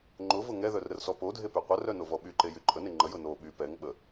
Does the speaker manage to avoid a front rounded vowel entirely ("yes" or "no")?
no